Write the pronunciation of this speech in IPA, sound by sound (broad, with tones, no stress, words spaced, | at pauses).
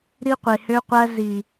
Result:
ɾi˦qʷe˨hø˦qʷæ˦ zi˨